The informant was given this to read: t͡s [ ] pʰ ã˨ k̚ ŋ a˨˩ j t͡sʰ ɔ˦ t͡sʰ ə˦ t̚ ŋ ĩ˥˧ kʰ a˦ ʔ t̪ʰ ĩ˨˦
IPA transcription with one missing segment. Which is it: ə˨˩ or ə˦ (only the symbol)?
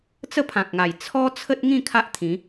ə˦